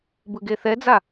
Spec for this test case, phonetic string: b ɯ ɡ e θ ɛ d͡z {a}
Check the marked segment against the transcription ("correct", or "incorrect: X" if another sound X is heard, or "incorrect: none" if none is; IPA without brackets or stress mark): correct